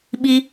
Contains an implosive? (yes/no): yes